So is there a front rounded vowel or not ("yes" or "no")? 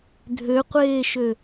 yes